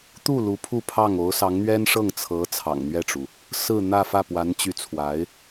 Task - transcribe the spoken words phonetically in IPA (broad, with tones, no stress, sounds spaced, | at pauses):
t̪ u˥˩ l u˧˥ pʰ u˥˧ pʰ ɑ˥˩ ŋ o˧˥ ʊ̯ s ɑ˧˥ ŋ n̪ ɥ ɛ˥ n ʂ ɤ˥˩ ŋ t͡sʰ ɤ˧˥ t͡sʰ ɑ̰˨˩ ŋ n̪ ɥ ɛ˥˩ ʈ͡ʂ u˩ | s ɹ̩˥˧ n̪ ä˥˧ f ä˥˩ p w a˧˥ n t͡ɕ y˧˥ t͡sʰ w a˧˥ ɪ̯